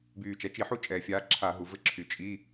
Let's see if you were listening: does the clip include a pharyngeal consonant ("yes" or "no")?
yes